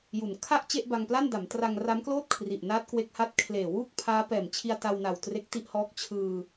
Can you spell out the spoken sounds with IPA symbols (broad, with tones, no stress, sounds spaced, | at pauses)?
j u˩˦ n kʰ a˥˩ ʔ t͡ɕ e˥˩ ʔ b a˧ ŋ p l a˥˩ n d a˩˦ m t r a˧ ŋ r a˦˥ m k l oː˥˩ t̚ kʰ r i˨˩ ʔ n aː˦˥ t̚ k w e˦˥ k̚ h a˥˩ t̚ kʰ l eː˨˩ w uː˥˩ k̚ pʰ aː˦˥ p ɛː˨˩ m t͡ɕʰ i˧ a̯ t a˧ w n a˨˩ w t r e˦˥ k̚ t i˥˩ ʔ h ɔː˦˥ k̚ t͡ɕʰ ɯː˧